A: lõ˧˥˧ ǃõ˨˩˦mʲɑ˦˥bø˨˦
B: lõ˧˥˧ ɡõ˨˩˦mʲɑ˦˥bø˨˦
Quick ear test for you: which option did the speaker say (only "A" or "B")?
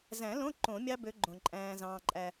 A